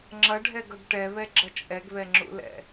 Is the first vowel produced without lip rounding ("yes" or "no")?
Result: yes